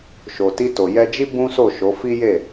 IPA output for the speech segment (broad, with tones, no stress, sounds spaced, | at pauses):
ʃ o˨ t i˧ t o˨ j ɛ˧ d͡ʒ i˦ b ũ˦ s o˦˨ ʃ o˨˦ f i˦ j e˦˨